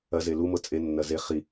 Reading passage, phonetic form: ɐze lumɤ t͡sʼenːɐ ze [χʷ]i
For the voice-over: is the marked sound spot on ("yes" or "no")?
no